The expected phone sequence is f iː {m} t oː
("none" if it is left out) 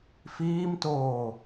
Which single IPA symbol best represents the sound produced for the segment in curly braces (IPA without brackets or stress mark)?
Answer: m